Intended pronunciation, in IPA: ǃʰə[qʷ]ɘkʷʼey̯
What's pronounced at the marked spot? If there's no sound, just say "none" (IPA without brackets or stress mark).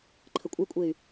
kʷʼ